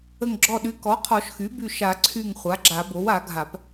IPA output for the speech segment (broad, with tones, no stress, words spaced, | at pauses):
ə˧˩ŋɡ͡ǁɔ˧˩ɗy˩˥ kɔ˩˥qʰɔ˨˩˦ʃxy˩˥ by˧˩ʃa˨˩˦ ǀʰy˧˩ŋ χʷa˩˥ɡ͡ǁa˨˩˦bo˩˥w a˨˩˦ ɡʱa˨˩˦p